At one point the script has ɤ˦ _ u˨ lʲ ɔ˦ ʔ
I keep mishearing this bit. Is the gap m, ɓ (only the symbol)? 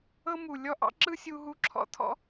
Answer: m